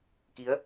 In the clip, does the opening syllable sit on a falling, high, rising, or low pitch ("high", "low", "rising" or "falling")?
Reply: rising